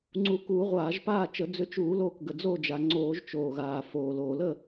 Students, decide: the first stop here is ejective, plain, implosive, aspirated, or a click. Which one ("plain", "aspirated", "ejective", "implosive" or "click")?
click